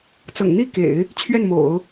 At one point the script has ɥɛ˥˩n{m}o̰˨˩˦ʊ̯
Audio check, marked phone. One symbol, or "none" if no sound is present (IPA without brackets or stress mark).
m